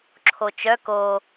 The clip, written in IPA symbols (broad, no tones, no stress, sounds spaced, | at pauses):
ǁʰ o t͡ʃ œ k o